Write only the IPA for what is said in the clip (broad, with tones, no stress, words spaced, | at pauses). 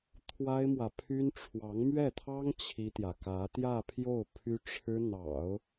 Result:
t̪ʰwa˥ɪ̯mwä˨pʰy˥n ʈ͡ʂʰwɑ˧˥ŋmɥɛ˥˩t̪ʰɑ˥ŋ t͡ɕʰi˥t̪jä˨ kä˧˥t̪jä˥˧pʰjo˥˩ʊ̯ pʰy˥ʈ͡ʂʰɻ̩˥ n̪ɑ̰˨˩˦ʊ̯